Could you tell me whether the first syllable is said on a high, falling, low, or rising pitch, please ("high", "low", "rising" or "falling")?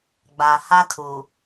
low